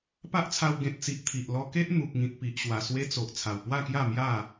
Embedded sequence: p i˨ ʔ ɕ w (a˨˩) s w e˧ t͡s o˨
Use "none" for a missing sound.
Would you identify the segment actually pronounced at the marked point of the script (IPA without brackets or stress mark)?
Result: a˨˩